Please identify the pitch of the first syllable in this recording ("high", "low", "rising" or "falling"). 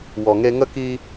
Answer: low